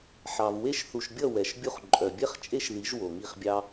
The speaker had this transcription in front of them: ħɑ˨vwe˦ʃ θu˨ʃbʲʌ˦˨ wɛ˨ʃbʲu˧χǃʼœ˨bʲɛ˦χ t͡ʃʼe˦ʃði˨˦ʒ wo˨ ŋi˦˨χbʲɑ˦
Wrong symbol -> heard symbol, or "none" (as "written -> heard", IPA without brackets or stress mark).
none